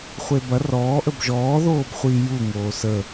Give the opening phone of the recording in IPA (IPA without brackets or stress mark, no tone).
χʷ